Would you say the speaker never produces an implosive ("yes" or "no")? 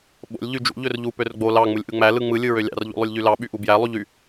no